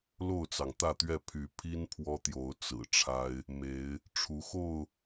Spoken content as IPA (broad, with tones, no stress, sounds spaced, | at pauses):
l o˥˨ ʊ̯ t͡s ɑ˩ ŋ t̪ ä˥˨ t̪ ɥ ɛ˥˨ pʰ y˨˦ pʰ i˦ n pʰ w ɔ˦ t̪ j o˨˦ ʊ̯ t͡s ɹ̩˨˩ ʈ͡ʂʰ a˦ ɪ̯ | m e˨˦ ɪ̯ | ʈ͡ʂʰ u˨˦ x o˥˨ ʊ̯